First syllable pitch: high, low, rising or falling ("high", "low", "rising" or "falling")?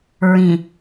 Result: low